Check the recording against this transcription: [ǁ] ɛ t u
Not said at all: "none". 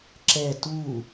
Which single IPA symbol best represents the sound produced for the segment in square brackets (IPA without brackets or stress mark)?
ǁ